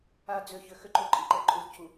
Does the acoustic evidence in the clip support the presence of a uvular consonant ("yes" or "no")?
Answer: no